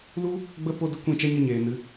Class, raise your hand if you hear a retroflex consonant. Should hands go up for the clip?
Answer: no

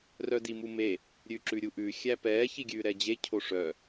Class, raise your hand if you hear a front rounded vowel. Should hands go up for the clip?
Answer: yes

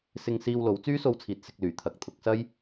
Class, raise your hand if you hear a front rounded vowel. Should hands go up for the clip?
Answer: yes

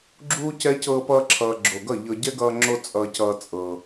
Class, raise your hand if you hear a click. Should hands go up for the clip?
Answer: yes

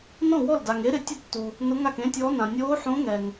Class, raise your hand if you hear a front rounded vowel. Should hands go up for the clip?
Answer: no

